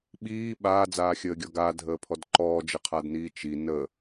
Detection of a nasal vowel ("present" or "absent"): absent